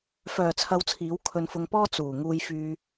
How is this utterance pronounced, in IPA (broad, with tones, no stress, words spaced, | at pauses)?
fœː˨t͡sʰɐ˧wt͡sʰiː˨˥w kʰɵ˧nfʊ˧ŋpɔː˥ t͡suː˨˩ ŋuː˧jfyː˧